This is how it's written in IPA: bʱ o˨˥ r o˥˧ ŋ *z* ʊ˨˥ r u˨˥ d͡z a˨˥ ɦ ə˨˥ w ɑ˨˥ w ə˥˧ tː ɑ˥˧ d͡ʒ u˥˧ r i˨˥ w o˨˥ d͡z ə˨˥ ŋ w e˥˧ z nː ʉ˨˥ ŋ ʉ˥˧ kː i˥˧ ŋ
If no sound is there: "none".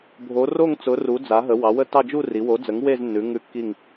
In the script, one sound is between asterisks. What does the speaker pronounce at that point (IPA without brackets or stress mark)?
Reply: t͡s